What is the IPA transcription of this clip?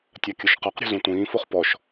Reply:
tʲakʲʊʃqaqɾʲɔ̤ zũtʷĩːfoχ pɔʃ

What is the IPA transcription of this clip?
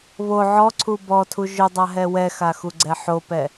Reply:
βo ʕɔǀʰu bɔtʰu ʒʊdˤaɦɛ wɛxaxuɡ͡ǀɛ ħopɛ

